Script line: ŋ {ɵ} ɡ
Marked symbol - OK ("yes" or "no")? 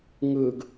yes